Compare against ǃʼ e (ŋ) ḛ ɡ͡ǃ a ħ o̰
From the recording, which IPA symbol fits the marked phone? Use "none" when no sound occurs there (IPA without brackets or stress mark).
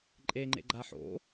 ŋ͡ǃ